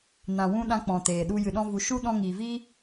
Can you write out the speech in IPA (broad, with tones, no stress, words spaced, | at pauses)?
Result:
nã˨wũ˧ ɗã˧k͡pɔ̃˨ teː˨ɗu˧ jɨ˨ɗɔ̃˧ vu˨ ʃu˦ ɗɔ̃˧ŋiː˨viː˦